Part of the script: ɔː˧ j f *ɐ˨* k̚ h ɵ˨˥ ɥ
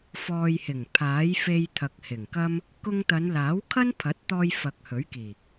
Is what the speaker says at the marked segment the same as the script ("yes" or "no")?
yes